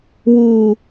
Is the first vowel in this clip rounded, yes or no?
yes